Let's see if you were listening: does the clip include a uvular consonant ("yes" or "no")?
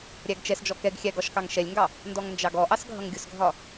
no